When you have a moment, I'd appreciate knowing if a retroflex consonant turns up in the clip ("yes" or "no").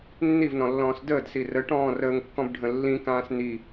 yes